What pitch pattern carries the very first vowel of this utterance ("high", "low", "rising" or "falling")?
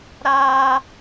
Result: high